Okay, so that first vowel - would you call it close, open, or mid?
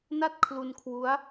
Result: open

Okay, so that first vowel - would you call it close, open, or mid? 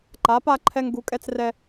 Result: open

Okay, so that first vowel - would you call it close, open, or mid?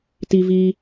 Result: close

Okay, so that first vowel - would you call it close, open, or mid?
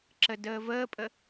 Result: mid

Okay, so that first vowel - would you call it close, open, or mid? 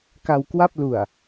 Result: open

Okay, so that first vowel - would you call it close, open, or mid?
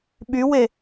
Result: close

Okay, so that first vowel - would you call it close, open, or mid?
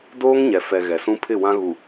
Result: mid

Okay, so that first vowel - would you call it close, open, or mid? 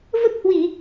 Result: mid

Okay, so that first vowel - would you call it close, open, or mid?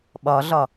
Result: open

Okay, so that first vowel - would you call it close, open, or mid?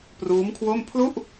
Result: close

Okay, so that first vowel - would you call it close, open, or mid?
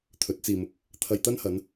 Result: mid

